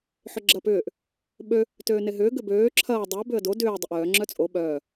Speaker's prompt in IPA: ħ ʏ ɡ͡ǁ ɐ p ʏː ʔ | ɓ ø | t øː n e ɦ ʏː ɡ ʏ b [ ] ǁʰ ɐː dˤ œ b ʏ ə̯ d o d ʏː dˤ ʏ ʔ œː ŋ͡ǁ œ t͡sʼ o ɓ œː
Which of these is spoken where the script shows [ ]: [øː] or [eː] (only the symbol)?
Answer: øː